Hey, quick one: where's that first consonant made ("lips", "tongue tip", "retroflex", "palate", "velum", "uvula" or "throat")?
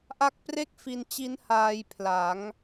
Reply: throat